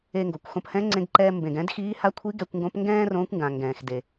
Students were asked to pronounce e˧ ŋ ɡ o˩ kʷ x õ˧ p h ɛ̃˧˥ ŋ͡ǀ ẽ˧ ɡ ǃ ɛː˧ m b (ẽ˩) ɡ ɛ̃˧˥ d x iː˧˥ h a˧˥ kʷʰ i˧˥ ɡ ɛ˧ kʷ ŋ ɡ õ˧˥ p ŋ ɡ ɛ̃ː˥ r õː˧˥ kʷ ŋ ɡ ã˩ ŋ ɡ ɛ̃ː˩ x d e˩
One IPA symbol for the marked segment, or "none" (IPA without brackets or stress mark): ẽ˩